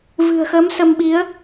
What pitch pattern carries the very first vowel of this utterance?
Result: low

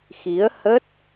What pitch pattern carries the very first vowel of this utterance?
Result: rising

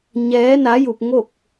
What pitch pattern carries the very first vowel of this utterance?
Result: rising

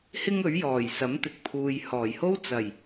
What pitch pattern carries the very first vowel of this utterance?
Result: high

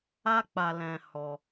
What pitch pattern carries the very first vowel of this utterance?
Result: high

